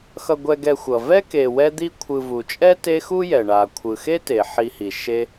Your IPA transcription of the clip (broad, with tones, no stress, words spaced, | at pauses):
xʌ˨ɡʷɛ˨ɡɛ˨xʷʌ˩ vɛ˥ke˨ wɛ˦d̪i˦kʷʰɯ˨vu˩ t͡ʃʼɛ˥te˦xu˥jɛ˩ ɳa˩kʷʰɯ˩ xe˥te˩ħi˨hi˩ ʃe˦